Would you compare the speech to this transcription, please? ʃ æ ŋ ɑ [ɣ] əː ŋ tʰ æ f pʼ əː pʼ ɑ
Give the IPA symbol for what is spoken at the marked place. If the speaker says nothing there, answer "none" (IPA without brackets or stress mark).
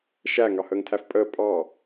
h